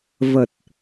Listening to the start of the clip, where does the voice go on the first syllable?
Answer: low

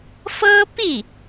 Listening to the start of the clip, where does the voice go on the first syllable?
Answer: high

